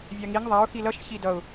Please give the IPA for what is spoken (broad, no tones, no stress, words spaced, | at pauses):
vʲaŋiŋ ðˤaʊ̯ xilʌʃ çidʌʊ̯